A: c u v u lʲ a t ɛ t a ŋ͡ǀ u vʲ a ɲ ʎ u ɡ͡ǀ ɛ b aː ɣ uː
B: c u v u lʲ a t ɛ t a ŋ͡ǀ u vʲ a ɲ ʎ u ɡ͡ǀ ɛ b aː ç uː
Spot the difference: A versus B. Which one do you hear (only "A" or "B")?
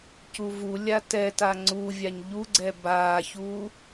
B